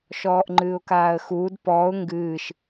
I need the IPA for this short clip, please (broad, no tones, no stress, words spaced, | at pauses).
ʃɔːʔŋ͡ǃɨːʊ̯kaːə̯xuːd pɔːʊ̯ ŋɡɨːʃ